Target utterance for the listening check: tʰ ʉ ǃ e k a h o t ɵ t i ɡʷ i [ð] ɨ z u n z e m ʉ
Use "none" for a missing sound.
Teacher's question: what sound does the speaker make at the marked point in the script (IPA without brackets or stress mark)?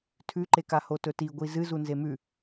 z